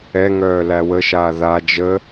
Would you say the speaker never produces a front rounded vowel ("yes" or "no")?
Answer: no